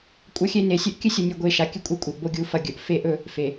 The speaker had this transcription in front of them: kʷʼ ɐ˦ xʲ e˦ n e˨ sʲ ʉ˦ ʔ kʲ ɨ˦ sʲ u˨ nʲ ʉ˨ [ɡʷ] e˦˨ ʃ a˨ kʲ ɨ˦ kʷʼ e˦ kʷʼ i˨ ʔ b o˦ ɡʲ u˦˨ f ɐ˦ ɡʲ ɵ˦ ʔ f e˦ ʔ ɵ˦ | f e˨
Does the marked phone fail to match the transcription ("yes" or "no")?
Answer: no